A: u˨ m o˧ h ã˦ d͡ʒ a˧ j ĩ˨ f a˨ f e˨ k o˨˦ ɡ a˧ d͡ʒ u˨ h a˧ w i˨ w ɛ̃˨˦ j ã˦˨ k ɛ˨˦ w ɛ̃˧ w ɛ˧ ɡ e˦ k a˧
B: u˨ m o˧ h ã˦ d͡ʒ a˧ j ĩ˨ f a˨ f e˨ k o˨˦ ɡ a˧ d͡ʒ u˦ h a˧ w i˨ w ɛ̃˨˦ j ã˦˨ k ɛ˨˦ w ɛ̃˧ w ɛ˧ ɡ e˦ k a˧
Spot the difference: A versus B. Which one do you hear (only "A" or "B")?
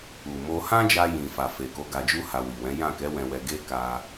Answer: B